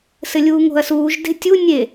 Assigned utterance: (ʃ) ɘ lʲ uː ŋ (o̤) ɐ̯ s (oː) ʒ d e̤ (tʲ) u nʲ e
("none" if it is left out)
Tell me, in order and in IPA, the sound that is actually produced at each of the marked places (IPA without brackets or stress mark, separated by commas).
s, o̤, uː, tʲ